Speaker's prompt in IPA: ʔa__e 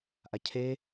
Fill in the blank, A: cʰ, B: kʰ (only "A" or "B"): A